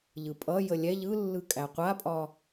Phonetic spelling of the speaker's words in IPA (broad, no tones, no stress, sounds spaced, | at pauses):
ʎ ɯ pʼ ʌ j ə lʲ ɛ ʎ ɯ lː ɯ kʼ æ qʷ a pʼ ɒ